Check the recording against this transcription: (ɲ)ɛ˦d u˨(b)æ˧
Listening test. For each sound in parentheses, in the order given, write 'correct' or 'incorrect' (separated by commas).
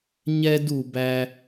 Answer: correct, correct